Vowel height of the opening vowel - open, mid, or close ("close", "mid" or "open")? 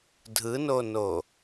close